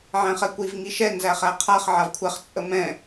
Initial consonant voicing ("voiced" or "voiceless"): voiced